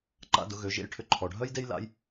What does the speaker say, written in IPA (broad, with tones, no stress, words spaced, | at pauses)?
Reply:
ǃa̰˧dʊ˩˧ɣø˩˧ʒḛ˧j ʈʰʏ˧ǃʰɔ˩ɖʱœ˥jde˥j la̰˧˥j